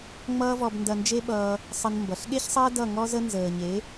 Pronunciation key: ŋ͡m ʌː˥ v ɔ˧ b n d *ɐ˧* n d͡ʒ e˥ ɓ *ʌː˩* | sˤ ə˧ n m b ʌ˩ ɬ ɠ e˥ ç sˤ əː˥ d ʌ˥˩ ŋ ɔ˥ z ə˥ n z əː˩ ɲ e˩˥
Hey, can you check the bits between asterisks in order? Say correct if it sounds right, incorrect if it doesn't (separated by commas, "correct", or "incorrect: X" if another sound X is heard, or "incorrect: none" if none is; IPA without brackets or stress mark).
correct, incorrect: ʌː˧